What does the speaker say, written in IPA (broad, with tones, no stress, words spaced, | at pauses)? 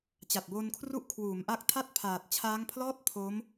t͡ɕa˨˩t̚boː˧nkʰru˦˥ʔ kʰwuː˩˦mʔa˦˥k̚tʰa˥˩t̚ pʰaː˨˩t̚ t͡ɕʰaː˦˥ŋpʰlɔː˥˩t̚ pʰoː˦˥m